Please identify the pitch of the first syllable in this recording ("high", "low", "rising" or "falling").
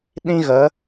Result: high